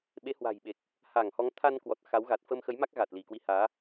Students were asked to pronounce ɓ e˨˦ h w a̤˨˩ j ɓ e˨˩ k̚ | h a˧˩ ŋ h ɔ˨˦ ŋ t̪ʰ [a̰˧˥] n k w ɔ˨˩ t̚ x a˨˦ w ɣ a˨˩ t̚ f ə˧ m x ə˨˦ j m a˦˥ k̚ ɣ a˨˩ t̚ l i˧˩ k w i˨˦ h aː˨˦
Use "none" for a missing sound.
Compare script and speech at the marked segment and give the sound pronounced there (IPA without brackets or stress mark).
a˧